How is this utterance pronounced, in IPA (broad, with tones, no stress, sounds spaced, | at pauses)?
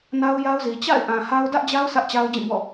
n a˦ ʊ̯ j a˦ ʊ̯ z i˨ t͡ɕ a̰˦˨ ɪ̯ ʔ ã˨ h a˦ ʊ̯ d ä˦ ʔ d͡ʑ a˦ ʊ̯ s ä˦ ʔ t͡ɕ a˦ ʊ̯ d͡ʑ ĩ˦˨ b ɔ̰˦˨